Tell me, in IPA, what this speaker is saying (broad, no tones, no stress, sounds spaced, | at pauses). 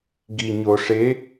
ɡ i ɲ o ʂ e